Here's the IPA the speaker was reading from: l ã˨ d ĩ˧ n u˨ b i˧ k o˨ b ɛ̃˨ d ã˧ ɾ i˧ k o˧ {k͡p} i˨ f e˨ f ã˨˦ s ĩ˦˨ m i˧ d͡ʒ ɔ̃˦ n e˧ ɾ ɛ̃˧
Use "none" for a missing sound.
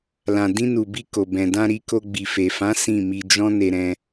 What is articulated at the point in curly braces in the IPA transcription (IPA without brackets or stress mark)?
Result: ɡ͡b